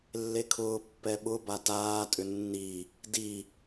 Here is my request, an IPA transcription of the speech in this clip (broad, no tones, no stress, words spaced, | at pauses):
lːekʰʊː pːɛɓʊba taːtʼʏ nːi | di